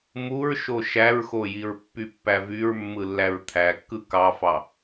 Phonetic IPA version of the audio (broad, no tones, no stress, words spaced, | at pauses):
muɹʃo ʃæɹxo jiɹpːypːævyɹ mːɯlːæɹt̪ʰækːɯ kɑfɑ